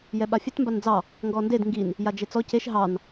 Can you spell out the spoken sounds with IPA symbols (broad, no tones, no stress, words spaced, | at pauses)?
jɛɓafʲɛt mband͡zɑ | ŋɡɔnded ŋɡin | jad͡ʒet͡sɔ ceʃ ɦɑn